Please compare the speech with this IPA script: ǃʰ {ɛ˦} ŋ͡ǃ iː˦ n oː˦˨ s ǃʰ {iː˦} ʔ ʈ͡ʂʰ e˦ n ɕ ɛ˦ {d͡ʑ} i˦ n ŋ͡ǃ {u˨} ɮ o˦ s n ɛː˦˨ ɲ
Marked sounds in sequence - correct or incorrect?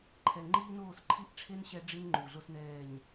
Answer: incorrect: ɛ˨, incorrect: i˦, incorrect: ɖ͡ʐ, correct

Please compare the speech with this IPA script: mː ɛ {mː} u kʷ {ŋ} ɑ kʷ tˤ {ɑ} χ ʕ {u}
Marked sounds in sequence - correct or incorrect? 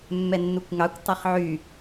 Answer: incorrect: nː, correct, incorrect: ʌ, incorrect: y

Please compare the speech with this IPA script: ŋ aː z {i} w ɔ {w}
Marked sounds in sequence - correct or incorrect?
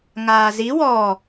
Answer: correct, incorrect: none

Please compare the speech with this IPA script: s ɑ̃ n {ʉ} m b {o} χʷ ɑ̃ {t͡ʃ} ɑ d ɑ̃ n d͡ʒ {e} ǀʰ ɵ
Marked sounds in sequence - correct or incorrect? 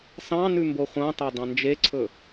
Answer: correct, correct, incorrect: t, correct

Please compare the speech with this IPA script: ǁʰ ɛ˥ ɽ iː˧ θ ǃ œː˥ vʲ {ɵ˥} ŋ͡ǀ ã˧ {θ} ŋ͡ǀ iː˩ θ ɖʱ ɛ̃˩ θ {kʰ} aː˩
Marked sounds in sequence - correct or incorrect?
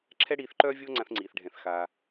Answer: incorrect: o˥, correct, incorrect: x

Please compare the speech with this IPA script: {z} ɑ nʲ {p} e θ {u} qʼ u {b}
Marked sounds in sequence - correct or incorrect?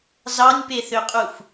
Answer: correct, correct, incorrect: ø, incorrect: f

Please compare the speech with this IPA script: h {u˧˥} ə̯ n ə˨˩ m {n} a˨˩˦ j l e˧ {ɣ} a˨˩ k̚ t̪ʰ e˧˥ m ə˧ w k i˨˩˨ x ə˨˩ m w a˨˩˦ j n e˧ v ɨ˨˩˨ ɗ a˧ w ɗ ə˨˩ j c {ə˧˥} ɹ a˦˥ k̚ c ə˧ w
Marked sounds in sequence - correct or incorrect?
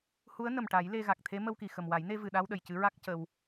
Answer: correct, incorrect: ʈ, correct, incorrect: ɨ˧˥

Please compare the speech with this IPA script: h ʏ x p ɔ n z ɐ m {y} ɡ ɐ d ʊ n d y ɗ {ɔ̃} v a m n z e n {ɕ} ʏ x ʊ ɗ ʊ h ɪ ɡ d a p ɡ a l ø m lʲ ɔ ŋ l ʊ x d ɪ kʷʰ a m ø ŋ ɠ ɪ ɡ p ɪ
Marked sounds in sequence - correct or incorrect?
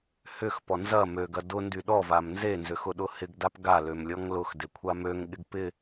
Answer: incorrect: ø, incorrect: ɔ, incorrect: z

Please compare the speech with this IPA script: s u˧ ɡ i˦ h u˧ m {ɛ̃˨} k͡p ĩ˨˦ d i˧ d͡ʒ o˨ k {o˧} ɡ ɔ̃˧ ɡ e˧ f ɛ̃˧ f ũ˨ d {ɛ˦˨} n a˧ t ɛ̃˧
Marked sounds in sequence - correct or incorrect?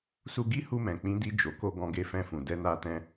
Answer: correct, correct, incorrect: ɛ˧

